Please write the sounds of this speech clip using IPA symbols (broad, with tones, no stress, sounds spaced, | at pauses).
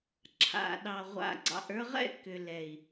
ǁʰ a̰˨ ɗ ɑ˨ ʁʷ a̰˨ ɡ͡ǀ ɑ̰˨ ʔ ə˞˧ ʁ ɛ̰˦ k ʏ˨ l ɛ˨ i̯